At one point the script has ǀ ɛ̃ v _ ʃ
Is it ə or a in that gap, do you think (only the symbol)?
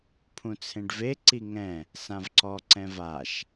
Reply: a